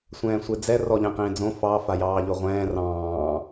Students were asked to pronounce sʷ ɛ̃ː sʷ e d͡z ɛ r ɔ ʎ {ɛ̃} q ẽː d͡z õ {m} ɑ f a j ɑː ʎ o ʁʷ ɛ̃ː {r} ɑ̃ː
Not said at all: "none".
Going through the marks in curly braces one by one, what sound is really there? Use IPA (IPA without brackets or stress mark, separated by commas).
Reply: ɛ̃, f, r